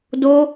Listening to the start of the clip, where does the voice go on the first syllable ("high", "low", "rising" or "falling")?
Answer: high